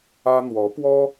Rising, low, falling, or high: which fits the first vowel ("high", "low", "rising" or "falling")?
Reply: high